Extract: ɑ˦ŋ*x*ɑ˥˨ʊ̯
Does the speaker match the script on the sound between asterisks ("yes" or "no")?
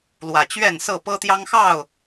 yes